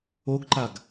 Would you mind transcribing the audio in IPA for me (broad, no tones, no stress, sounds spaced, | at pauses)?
o ɡ ǃ a ɡ